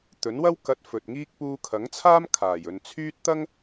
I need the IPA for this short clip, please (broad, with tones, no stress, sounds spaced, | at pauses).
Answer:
t̪ ɵ˨˥ n w ɐ˥ w k ɐ˧ t̚ f ɵ˨ t̚ ŋ iː˥ k̚ p uː˧ kʰ ɐ˨˥ ŋ t͡sʰ aː˥ m kʰ aː˨˩ j ɵ˨ n t͡sʰ yː˥ t̚ t̪ ɐ˥ ŋ